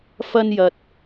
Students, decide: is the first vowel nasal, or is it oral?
oral